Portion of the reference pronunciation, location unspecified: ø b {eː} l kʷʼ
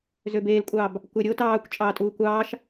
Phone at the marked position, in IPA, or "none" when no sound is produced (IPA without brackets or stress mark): eː